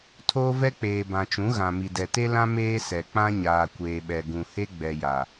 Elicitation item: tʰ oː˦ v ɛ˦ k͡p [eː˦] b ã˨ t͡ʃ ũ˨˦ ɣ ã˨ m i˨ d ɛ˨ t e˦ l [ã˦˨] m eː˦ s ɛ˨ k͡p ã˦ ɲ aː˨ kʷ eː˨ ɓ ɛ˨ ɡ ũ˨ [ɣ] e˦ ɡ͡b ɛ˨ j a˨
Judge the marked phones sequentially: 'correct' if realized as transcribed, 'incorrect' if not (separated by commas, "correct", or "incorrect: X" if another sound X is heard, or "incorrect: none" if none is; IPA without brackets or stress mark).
incorrect: eː˨, incorrect: ã˦, incorrect: h